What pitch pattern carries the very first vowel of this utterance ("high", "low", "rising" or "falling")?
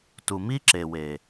low